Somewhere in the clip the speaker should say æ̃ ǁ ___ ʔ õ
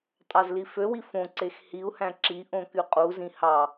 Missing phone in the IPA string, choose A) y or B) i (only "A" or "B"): B